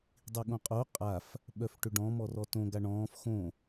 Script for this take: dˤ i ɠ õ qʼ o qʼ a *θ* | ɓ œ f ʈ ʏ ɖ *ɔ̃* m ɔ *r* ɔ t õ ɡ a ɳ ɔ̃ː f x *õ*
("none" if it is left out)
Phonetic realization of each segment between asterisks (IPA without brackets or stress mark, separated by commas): f, ɔ̃, r, õ